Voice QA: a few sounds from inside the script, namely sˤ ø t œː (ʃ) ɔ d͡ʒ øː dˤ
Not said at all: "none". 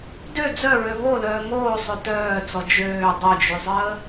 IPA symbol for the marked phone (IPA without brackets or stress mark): t͡s